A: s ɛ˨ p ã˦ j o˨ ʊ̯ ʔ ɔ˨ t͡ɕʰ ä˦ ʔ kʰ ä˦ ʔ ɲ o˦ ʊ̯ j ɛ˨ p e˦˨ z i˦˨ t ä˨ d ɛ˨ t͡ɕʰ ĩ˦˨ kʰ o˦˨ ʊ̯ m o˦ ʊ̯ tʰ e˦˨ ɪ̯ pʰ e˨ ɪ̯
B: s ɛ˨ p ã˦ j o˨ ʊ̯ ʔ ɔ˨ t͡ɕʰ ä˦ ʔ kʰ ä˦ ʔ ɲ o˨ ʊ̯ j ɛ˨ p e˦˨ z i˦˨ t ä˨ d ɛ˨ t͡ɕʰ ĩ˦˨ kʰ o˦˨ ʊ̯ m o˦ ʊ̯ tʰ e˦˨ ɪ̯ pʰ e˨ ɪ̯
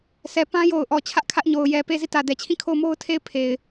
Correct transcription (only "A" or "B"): B